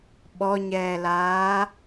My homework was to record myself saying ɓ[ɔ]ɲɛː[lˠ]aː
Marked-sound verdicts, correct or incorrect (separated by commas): correct, incorrect